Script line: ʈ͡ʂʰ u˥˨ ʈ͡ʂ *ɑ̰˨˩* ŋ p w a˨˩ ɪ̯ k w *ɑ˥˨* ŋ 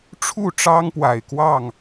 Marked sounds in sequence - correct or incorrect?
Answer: incorrect: ɑ˦, correct

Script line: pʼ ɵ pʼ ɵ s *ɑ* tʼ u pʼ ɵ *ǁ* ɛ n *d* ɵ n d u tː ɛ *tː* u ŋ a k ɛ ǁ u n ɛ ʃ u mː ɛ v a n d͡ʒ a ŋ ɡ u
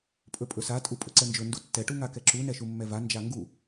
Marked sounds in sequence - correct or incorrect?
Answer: incorrect: a, incorrect: ǀ, incorrect: d͡ʒ, incorrect: ʈ

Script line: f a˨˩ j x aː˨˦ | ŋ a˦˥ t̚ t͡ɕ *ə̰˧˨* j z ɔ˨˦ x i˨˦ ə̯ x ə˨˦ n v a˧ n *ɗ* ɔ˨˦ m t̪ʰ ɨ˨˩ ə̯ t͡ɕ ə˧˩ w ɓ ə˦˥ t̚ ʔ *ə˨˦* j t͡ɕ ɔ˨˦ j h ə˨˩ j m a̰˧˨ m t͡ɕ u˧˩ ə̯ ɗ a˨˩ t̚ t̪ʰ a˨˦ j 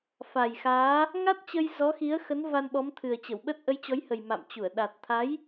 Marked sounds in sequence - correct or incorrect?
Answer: incorrect: ə˧, incorrect: ɓ, correct

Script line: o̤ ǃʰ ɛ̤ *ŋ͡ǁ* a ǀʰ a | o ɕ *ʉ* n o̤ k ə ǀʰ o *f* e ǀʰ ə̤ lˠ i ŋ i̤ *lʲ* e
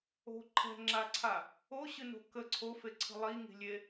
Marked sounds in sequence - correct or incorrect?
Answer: correct, incorrect: ɨ, correct, correct

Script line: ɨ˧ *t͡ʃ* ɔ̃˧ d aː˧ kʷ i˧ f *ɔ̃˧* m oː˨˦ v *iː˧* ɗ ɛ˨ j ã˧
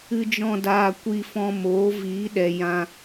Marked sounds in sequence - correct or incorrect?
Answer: incorrect: d͡ʒ, correct, incorrect: iː˨˦

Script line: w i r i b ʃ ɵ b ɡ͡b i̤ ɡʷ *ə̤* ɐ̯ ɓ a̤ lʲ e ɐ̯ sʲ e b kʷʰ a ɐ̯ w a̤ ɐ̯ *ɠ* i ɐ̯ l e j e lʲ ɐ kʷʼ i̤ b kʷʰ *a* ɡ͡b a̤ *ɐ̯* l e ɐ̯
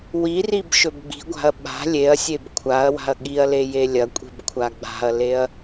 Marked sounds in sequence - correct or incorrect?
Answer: incorrect: a̤, correct, correct, correct

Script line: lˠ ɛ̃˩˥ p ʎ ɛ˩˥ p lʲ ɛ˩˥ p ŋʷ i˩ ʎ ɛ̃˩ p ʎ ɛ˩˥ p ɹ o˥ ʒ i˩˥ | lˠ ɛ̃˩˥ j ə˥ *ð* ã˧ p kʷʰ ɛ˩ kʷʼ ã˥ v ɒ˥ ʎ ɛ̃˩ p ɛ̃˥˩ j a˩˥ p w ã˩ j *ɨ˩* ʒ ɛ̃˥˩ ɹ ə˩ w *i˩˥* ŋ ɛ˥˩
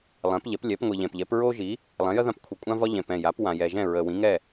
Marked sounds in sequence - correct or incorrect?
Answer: correct, incorrect: ɛ˩, incorrect: ĩ˩˥

